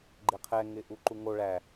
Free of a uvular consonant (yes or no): no